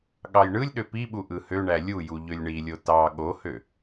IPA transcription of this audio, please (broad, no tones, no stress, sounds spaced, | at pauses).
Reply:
ɠ ɑ j ɳ ɯ lʲ ɗ ø p i ɓ u ʔ ɯ h ø ɳ æ lʲ u j u ʎ ø lʲ ɳ i lʲ o t ɑ ɠ o h ø